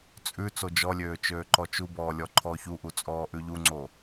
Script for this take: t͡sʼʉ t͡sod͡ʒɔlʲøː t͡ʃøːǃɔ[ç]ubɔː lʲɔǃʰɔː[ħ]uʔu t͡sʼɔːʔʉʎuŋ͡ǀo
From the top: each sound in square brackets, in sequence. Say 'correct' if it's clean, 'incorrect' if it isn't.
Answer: incorrect, incorrect

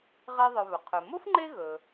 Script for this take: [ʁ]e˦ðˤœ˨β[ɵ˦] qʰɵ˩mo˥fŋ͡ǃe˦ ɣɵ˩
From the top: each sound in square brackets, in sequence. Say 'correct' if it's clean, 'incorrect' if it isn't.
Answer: correct, incorrect

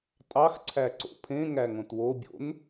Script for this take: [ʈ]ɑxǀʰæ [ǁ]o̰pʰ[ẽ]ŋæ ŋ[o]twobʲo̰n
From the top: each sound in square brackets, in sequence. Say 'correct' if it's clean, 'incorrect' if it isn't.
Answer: incorrect, incorrect, correct, incorrect

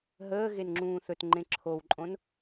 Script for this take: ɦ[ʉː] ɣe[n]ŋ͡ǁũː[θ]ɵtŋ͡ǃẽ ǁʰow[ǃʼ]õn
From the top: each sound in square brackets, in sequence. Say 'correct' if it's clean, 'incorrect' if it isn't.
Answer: incorrect, correct, correct, correct

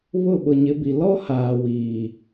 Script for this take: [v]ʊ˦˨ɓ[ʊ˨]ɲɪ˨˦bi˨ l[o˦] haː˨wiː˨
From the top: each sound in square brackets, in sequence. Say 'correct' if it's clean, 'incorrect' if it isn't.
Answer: incorrect, correct, incorrect

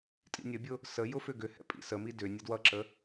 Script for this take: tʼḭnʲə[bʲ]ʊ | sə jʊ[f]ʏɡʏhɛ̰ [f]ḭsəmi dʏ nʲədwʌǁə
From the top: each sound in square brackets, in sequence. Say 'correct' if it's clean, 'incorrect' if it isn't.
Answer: correct, correct, incorrect

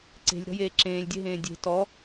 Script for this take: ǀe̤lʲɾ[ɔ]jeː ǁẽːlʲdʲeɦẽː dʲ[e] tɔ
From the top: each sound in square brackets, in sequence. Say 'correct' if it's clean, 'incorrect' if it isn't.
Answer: incorrect, incorrect

